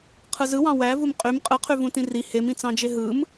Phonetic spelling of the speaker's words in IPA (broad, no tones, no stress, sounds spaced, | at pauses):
qʰ ɯ z ɯ w ɑ̃ w æ v u m qʼ y m qʼ ɯ qʰ y v ũ t ĩ r i h e m ĩ t͡s ɑ̃ d͡ʒ e ɦ ɯ m